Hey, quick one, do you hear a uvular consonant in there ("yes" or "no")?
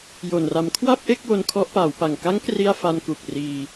no